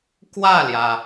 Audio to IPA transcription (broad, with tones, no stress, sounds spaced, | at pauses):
k w ä˥˩ l j ä˩